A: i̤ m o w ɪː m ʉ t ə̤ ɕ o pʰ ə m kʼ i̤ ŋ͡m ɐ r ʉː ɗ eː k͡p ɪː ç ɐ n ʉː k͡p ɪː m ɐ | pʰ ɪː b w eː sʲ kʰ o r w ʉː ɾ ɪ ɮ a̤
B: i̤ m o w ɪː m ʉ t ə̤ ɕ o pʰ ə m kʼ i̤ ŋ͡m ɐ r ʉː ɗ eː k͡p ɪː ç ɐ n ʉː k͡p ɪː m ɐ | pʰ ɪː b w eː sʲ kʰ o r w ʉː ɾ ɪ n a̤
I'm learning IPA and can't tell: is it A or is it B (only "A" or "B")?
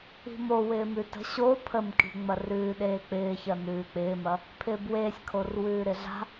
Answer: A